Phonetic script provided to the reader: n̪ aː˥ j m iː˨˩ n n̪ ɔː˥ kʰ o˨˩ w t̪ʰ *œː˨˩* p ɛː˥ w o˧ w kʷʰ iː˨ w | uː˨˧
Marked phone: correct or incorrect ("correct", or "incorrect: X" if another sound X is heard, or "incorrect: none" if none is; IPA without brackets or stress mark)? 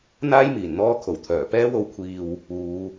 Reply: correct